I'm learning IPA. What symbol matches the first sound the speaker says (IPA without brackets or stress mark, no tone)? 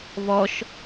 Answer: β